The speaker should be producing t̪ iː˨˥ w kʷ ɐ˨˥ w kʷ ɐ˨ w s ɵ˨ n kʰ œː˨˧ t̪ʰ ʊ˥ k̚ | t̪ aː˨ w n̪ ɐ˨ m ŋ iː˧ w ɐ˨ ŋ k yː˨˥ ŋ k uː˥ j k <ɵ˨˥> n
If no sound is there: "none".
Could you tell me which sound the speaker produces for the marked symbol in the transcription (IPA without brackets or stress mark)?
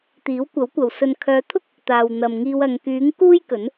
ɵ˨˥